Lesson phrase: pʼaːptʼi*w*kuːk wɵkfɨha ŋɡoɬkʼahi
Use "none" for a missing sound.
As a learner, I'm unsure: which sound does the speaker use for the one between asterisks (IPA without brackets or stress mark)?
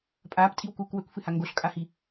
w